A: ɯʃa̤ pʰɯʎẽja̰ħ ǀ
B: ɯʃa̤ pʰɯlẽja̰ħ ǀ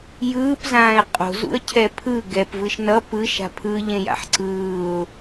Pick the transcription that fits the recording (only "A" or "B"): A